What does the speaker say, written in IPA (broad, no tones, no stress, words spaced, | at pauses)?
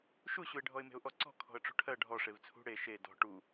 ʃuɕuɪ̯ ɖʱɔɪ̯me̤ʊ̯ʔɔǀɔ̤ kʰɔ̤ə̯ʈ͡ʂṳʈʰɜ ɖʱɔ ʂevt͡sʰṳ ɽe ʃe dɔ̤ ʈu